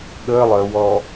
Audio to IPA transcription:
ɠ əː lˠ əː w ɔː

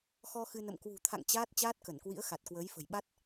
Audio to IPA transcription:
x ɔ˧ x ɨ˧ n ə̰˧˨ m k w ṳ˨˩ t̪ʰ a̰˧˨ ŋ t͡ɕ aː˦˥ t̚ t͡ɕ aː˦˥ t̚ k ə˧˩ n k w ḭ˧˥ ə̯ x a˨˩ t̚ k w əː˨˦ j f ə̤˨˩ j ɓ a˦˥ t̚

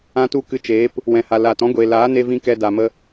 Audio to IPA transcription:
ã˦ t u˦ k ɨ˧ t͡ʃ eː˨˦ p | w ɛ̃˨ h a˨ l aː˨ t ɔ̃˦ ɡʷ eː˨ l aː˨˦ n e˧ v ĩ˧ k ɛ˧ d a˨ m ə˧

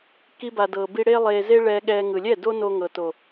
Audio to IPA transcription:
k i˧ b a˨ d ɤ˨ b i˧ ɽ e˦ lˠ e˧ z e˦ ɭ ɛ˧ ɠ ɛ˧ ŋ ɯ˨ lʲ ɛ˦˨ d o˦ n o˧ ŋ ɤ˨ t o˨

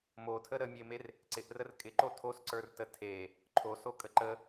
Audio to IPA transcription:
m o tʰ ə ɾ ə mʲ e m e r | ǀ ɪ ʔ r ə r kʼ ɪ ǃ o tʰ o s ǀ ə˞ r t ə tʰ e | ǃʰ o s o kʼ ə ǃ ə

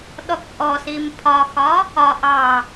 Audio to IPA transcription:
ɗ ɔ k ʔ ɔ s i m pʰ ɒ x ɒ | ɒ ʔ ɑ

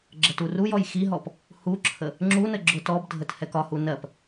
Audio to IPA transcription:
ɡ͡ǁ ə t u r u j ɔ j x i ɦ ɔ p | h u ǁʰ ə | ŋ͡ǁ u n ə ɡ͡ǁ ʊ t ɔ b dʱ ə t h ɛ k ɒ h u n ɜ p

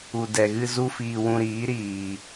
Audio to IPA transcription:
u˨ d ɛ˨ ɣ ɨ˧ z u˦ f iː˧ w ũ˧ ɾ iː˨˦ ɾ iː˨

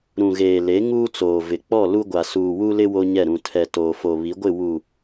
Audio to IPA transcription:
ɾ ũ˨ ɣ eː˨ l e˨˦ ŋ uː˦ t͡s oː˨ v ɪ˨ k͡p ɔ˦˨ l u˦ ɡʷ a˨ s uː˨ w u˦ l ɪ˦ w o˦ ɲ ɛ˦˨ ɾ ũ˨ tʰ ɛ˨ t oː˨ f o˨ β i˨˦ ɡʷ ɪ˦˨ w u˨

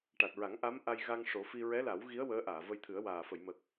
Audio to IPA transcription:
ʈ a˨˩ t̚ ɹ a˨˩˦ ŋ ʔ a˧˥ m ʔ a˧ j ɣ a˧ ŋ ʂ o˨˩˦ f i˧ ɹ ɛ˧˥ l a˨˩˦ w ɣ i˧˥ ə̯ w əː˧˥ ʔ aː˨˩˨ v ə˧ j t̪ʰ ɨ˨˩˦ ə̯ w aː˨˩ f ə˨˩˨ j m ə˨˩ k̚

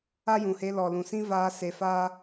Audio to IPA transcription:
a˦ j ũ˨ h e˧ l ɔ˨ l ũ˨ s ĩ˦ v aː˧ s e˧ f aː˦

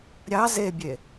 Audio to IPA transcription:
ɾʲ ɑ z e bʲ e

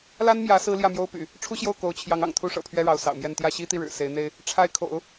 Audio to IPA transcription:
l a˥ n m j ä˧˥ s ɹ̩˥ l j ä˥˩ m j o˥ ʊ̯ p y̰˨˩˦ | ʈ͡ʂʰ u˥ ɕ j o˥˩ ʊ̯ k o˧˥ ʊ̯ t͡ɕʰ j ɑ˧˥ ŋ ɑ̰˨˩ ŋ t̪ʰ u˥ ʂ ɤ̰˨˩ pʰ ɥ ɛ˥ ɻ ɑ˧˥ ʊ̯ s ɑ̰˨˩ ʊ̯ m j ɛ˥˧ n t̪ j ä˥˩ ɕ i˥ t̪ i˥˩ ɻ ɻ̩˨˩ s e˧˥ ɪ̯ n̪ e˥ ɪ̯ | ʈ͡ʂʰ a˥˩ ɪ̯ kʰ o̰˨˩˦ ʊ̯

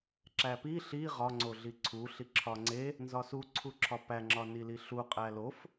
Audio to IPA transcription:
ǁ æ p i ɬ i ʁ ɒ ŋ͡ǀ o ɮ i ǀʰ u ɬ i ǁʰ ɒ ŋ͡ǀ e | n z ɒ s u ǀʰ u ǁʰ ɒ p æ ŋ͡ǁ ɒ n i l i ɬ u qʼ æ l o f

